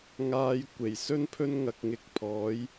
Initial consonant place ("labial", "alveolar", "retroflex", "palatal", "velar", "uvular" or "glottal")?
velar